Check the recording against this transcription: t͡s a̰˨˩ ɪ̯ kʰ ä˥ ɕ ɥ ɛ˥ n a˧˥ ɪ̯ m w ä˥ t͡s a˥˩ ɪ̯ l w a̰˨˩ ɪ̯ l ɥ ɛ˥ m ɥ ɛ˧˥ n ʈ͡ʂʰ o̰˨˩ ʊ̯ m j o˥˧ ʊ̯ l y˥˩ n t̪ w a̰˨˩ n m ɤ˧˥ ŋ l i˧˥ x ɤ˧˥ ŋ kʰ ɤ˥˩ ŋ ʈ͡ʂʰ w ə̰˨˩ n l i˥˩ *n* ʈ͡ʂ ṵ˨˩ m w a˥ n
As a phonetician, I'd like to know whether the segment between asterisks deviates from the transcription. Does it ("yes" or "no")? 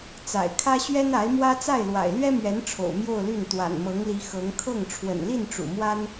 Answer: no